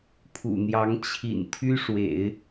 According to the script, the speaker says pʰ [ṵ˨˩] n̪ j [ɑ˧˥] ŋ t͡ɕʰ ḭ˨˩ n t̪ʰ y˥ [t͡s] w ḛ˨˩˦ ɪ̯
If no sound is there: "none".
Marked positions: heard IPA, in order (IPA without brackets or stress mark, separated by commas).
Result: ṵ˨˩, ɑ˧˥, ʂ